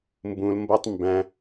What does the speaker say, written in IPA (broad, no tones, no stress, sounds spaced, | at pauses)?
m b ũ l m b ʌ tˤ m b æ̃